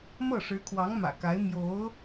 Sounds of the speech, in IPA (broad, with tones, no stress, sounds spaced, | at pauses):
m ɤ˥˩ ʂ ɻ̩˧˥ kʰ w ɑ˧˥ ŋ m ä̰˨˩ k a˧˥ ɪ̯ m j o˧˥ ʊ̯